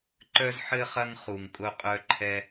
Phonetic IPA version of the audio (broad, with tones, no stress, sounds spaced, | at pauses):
ǃ œ˥ z ħ ɘ˥ χ ɐ˥ ŋ χ u˧ ŋ kʼ ʊ˥ qʼ œ˥ ǃʰ ɛ˥